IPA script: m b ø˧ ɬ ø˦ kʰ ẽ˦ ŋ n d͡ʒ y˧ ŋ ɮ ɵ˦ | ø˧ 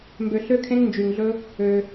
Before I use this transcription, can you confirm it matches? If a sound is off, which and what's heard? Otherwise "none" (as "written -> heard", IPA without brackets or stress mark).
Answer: none